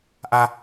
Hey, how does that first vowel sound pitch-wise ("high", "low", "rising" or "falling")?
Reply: high